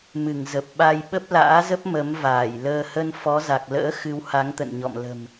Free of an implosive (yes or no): no